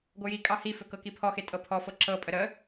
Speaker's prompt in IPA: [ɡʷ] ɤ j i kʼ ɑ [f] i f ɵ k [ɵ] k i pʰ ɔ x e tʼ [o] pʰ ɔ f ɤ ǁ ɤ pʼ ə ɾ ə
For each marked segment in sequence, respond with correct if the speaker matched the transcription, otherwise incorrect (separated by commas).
correct, incorrect, incorrect, incorrect